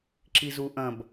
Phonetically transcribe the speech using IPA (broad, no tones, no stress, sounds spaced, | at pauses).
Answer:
ǁ i z u ʔ ɐ̃ b